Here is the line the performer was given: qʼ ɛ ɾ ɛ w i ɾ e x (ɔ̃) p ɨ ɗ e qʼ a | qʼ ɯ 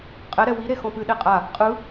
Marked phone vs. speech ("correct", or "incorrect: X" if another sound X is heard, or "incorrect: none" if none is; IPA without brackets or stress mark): correct